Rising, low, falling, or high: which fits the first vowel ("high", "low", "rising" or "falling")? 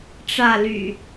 falling